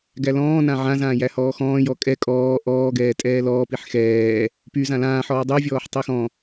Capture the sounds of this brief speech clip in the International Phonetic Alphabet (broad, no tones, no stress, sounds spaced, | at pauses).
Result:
ɡ æ l ɔ̃ː n ã ʕ ã z ãː j æ h ɔː x ɔ̃ː j ɔ kʼ ɛ kʼ ɔː ʔ ɔː ɡ ɛː tʼ ɛː l ɔː p i ħ x ɛː | p y z ã l ãː ħ ɔː dˤ y vʲ ɔː ħ tˤ i x ɔ̃